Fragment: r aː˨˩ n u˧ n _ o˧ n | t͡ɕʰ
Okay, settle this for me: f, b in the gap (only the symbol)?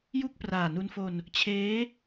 f